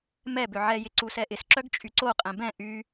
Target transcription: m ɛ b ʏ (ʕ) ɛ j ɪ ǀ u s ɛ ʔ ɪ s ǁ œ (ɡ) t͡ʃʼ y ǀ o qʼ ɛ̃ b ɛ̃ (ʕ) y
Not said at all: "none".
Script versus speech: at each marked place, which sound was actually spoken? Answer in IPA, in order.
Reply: ʕ, ɡ, ʔ

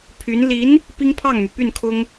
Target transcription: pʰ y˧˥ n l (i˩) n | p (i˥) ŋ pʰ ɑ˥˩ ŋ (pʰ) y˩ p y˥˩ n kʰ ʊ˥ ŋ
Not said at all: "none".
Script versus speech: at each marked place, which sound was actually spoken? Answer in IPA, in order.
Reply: i˧˥, i˥, m

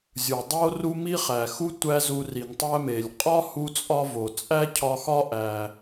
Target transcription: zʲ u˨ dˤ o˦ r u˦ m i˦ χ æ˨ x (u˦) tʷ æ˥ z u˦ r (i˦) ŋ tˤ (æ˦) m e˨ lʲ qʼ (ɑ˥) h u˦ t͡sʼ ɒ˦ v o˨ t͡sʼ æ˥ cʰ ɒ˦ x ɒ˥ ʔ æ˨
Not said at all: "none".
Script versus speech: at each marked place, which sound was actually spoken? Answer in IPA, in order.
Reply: u˦, i˨, æ˦, ɒ˥

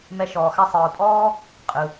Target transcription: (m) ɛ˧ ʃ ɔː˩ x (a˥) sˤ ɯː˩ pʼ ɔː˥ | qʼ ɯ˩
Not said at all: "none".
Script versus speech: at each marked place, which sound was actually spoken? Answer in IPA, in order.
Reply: m, a˥

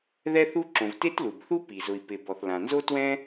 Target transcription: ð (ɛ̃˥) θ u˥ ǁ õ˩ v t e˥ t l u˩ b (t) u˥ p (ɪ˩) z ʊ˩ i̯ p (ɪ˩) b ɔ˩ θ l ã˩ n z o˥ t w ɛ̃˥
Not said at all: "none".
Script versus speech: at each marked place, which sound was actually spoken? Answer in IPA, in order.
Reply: ɛ˥, θ, i˩, ɪ˩

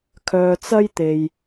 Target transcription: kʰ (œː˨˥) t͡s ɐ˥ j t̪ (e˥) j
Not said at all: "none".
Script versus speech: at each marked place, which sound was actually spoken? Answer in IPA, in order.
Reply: œː˧, e˧

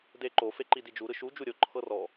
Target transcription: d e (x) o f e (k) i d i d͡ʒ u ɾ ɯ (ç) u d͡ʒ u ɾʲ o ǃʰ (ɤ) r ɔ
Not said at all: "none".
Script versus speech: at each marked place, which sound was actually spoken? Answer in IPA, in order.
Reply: ǃ, ǃ, ʃ, ɤ

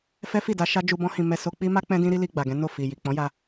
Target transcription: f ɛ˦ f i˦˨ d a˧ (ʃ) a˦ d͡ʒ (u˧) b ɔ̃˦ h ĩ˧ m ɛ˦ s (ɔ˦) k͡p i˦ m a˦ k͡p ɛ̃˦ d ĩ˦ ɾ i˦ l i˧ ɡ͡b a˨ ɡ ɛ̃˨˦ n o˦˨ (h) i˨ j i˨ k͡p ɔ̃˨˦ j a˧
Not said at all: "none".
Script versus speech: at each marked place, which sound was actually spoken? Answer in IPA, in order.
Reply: ʃ, u˧, o˦, f

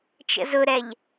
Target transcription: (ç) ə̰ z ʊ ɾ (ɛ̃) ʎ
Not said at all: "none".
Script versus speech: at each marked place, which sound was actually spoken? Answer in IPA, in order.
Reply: t͡ʃ, ɛ

